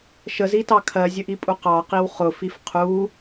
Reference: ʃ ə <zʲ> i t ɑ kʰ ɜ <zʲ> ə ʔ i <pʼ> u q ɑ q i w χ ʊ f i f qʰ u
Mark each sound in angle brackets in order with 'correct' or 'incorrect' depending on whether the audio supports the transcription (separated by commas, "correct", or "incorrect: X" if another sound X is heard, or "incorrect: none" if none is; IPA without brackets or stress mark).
incorrect: z, correct, correct